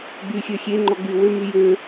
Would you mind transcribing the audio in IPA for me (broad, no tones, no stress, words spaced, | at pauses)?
ɡ͡byxʲø xʲeŋ͡ǃɔɡ͡by wømy jø